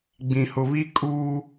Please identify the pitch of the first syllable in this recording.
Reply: low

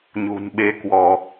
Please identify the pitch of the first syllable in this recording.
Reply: low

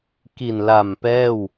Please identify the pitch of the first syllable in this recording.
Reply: low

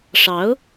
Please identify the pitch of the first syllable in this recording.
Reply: rising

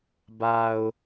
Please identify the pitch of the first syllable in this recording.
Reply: low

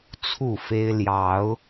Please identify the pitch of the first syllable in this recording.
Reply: falling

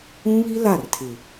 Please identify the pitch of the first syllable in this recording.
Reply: high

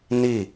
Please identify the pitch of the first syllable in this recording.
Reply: falling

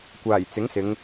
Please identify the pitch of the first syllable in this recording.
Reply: low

